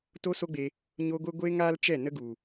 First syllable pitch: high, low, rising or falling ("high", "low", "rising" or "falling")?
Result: high